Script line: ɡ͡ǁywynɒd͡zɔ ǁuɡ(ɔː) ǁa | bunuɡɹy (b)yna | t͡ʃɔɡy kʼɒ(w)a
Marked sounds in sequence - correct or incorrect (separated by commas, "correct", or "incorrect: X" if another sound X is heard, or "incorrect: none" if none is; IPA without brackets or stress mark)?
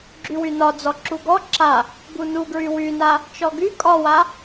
incorrect: ɔ, incorrect: w, correct